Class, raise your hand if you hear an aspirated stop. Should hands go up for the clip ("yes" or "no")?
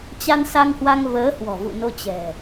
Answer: no